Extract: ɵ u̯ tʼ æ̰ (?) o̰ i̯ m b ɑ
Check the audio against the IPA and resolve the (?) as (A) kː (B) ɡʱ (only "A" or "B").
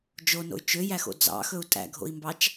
B